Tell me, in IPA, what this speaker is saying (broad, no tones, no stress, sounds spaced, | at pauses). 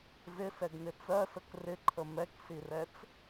z ɪ s ɛ ɡ n ɪ t͡s ɜ s ə k r ɪ ǃʰ ə m ɛ k s i r ɛ t͡s